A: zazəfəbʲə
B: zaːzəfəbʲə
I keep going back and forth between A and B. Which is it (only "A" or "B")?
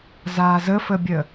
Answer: B